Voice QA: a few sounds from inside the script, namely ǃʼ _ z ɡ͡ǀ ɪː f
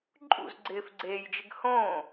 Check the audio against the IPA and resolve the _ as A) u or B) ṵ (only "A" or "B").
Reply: B